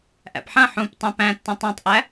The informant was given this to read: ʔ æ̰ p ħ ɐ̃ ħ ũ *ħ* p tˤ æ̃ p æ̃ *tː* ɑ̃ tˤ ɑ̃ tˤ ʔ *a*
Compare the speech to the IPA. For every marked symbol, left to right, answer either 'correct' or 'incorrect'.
incorrect, correct, incorrect

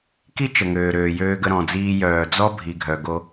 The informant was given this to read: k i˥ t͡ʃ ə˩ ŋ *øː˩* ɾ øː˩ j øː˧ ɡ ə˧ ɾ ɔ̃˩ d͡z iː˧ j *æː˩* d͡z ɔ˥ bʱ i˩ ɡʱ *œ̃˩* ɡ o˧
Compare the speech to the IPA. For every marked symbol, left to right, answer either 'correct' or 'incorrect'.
correct, incorrect, incorrect

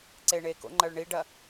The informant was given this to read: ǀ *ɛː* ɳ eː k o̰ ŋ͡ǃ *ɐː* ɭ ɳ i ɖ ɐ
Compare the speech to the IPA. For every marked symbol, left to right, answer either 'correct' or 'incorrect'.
incorrect, correct

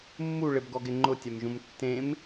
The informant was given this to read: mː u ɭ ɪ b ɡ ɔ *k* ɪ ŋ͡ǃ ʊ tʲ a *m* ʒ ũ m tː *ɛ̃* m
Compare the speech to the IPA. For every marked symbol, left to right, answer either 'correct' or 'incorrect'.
incorrect, correct, incorrect

